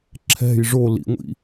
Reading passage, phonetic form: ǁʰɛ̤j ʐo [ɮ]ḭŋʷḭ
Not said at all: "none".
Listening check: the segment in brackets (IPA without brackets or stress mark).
l